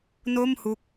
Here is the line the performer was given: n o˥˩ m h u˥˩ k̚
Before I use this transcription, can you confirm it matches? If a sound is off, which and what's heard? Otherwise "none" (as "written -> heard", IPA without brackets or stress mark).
u˥˩ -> u˦˥